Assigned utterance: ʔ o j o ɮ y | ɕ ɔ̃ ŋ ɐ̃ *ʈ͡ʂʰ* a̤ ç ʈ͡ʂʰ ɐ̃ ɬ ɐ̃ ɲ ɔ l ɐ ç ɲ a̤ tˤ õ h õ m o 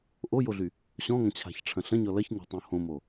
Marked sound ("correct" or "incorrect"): incorrect